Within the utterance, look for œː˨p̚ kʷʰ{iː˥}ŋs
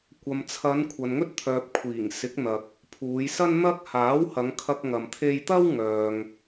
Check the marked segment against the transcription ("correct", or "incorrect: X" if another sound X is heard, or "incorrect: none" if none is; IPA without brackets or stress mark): incorrect: iː˨˩